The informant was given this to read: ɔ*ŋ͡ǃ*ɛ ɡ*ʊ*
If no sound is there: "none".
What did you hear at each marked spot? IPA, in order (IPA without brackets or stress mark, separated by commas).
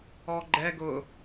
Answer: ɡ͡ǃ, ʊ